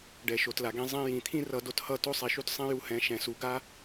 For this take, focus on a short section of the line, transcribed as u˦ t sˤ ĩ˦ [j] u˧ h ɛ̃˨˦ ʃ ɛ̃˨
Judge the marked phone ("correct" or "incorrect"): correct